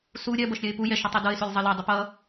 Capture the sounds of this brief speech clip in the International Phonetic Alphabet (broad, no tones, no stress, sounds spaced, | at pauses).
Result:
s u ɾʲ ɜ b ʌ ʃ ɾʲ ɜ ɪ̯ p u j ɛ ʃ ʌ tˤ i d ʌ ɪ̯ s u lʲ zˤ ʌ l ɛ dˤ i p ʌ